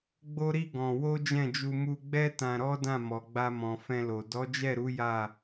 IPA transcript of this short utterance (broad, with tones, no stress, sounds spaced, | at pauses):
ɡ͡b o˦ ɾ i˦ ɡ ɔ̃˧ w o˦ d͡ʒ ɛ̃˦˨ d͡ʒ u˧ m u˧ ɡ͡b ɛ˦ t ã˧ ɾ ɔ˦ d ã˦˨ m ɔ˨ ɡ͡b a˧ m ɔ̃˨ f ɛ̃˧ l o˨ d ɔ˨˦ d͡ʒ ɛ˦˨ ɾ u˨˦ j a˦˨